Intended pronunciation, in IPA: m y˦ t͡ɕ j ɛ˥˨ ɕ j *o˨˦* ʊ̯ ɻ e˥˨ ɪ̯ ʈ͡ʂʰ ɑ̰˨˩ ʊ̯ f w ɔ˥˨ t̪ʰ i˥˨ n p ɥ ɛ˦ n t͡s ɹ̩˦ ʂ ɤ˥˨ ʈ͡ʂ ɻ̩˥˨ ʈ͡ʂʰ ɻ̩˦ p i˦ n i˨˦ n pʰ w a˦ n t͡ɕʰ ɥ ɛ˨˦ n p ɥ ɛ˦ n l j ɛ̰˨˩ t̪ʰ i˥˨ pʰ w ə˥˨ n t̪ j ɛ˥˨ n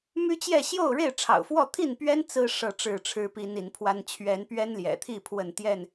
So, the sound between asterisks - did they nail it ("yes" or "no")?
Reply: no